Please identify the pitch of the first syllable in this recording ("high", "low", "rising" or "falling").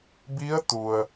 rising